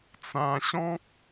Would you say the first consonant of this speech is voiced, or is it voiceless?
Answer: voiceless